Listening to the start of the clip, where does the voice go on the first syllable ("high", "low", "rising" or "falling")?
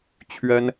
high